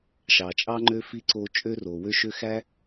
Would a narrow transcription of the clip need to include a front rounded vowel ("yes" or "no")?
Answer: yes